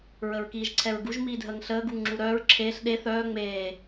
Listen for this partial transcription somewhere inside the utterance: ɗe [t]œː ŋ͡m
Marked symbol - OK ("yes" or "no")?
no